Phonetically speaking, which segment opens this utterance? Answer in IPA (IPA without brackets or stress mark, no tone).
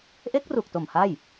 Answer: ʔ